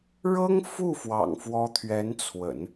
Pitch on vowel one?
high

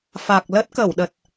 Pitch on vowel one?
low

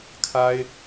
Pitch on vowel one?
high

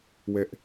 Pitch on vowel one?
high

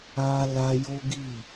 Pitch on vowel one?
high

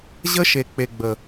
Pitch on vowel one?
high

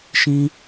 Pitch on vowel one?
high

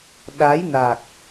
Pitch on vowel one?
rising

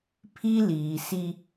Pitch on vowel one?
high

